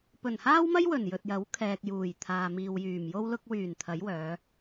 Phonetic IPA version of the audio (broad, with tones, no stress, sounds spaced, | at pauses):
p ɵ˨˩ n h aː˥ w m ɐ˥ j w ɵ˨˩ n j ɵ˨ t̚ j ɐ˨˥ w kʰ ɛː˨ k̚ j uː˨˩ j t̪ʰ aː˨ m iː˨ w j yː˨˩ m j o˥ w l ʊ˧ k̚ w yː˨˩ n t̪ʰ ɐ˨˥ j w œː˨˧